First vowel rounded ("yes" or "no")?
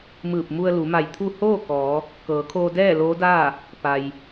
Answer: no